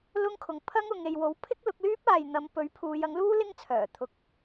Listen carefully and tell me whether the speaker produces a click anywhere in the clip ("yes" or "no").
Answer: no